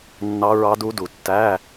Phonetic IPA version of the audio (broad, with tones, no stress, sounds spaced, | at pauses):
nː ɑ˦˥ ɹ ɑ˦˥ d u˦˥ d u˨˩ tː æ˧˥˧